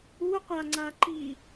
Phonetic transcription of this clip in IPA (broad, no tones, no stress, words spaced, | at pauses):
u qʷaŋ͡ǀaǃi